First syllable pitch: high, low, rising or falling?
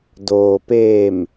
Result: low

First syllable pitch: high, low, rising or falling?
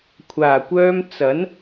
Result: low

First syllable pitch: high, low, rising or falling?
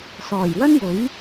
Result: low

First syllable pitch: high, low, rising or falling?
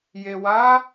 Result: low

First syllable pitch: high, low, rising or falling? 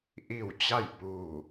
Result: falling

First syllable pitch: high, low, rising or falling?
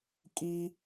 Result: high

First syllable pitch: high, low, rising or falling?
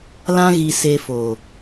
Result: high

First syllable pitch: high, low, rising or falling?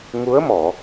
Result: rising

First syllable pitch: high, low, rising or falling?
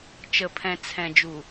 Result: low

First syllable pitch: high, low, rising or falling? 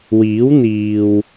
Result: rising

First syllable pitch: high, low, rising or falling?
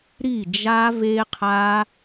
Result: falling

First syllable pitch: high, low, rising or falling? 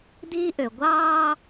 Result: high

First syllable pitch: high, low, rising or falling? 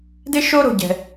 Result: high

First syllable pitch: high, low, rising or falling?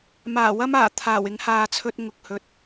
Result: low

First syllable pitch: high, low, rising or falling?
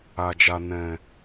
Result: low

